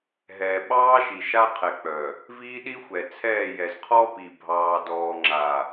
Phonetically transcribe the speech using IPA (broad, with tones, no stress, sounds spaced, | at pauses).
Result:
ɦ ɛː˨ ɓ ɑː˦ ʃ i˨ ʃ a˦ qʰ ɛ˨ k͡p œ˨ | v iː˦ ɗ i˦ xʷ ɛ˨ t͡sʰ ɛː˦˨ j ɛ˨ z qʰ ɔ˦ p i˨ bʱ ɑː˨ d ɔː˨ ŋ͡ǁ a˨